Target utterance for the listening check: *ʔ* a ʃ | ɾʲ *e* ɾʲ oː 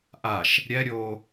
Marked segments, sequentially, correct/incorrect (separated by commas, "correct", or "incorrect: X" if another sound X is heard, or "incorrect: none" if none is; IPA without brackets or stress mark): correct, incorrect: ɛ